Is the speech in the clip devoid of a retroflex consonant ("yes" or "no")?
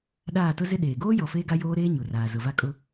yes